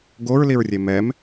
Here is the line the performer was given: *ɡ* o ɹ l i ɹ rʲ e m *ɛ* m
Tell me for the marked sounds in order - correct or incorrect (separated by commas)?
correct, correct